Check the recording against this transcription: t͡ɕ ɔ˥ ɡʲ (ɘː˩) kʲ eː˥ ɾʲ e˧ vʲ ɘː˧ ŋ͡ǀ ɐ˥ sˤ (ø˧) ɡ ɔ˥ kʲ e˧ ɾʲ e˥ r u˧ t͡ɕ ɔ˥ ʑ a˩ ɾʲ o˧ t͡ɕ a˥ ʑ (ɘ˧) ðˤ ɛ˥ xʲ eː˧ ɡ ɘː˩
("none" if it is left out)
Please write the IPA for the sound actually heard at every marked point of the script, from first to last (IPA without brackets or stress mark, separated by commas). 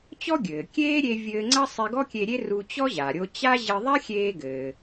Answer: ɘː˩, e˧, ɘ˧